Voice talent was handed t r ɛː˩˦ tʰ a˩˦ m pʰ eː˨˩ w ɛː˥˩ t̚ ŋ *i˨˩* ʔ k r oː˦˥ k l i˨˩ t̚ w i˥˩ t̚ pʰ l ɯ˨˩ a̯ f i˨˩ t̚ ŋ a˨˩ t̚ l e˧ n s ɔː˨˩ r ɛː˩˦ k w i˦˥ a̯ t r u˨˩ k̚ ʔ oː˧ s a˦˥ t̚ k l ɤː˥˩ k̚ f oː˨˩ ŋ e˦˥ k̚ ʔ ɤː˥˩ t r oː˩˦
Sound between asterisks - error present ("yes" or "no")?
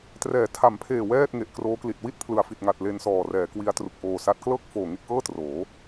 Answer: yes